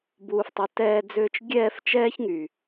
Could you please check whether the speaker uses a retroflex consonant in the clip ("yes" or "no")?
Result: no